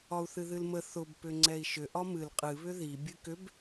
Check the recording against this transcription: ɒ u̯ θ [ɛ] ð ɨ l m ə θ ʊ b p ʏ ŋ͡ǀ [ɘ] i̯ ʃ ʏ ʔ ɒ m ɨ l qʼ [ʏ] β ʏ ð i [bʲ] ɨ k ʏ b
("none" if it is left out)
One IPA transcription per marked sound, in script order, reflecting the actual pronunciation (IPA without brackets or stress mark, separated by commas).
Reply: ɨ, ɛ, ɨ, bʲ